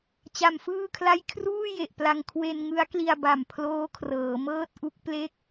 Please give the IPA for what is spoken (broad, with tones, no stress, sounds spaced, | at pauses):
t͡ɕ a˧ m f ɯː˥˩ kʰ l a˥˩ j kʰ r uː˥˩ j e˨˩ ʔ p l a˧ ŋ kʰ w e˧ n ŋ ɯ˦˥ a̯ k l i˧ a̯ b a˨˩ m pʰ l oː˦˥ kʰ r ɤː˩˦ m ɤː˥˩ t̚ ʔ u˦˥ k̚ p l e˥˩ k̚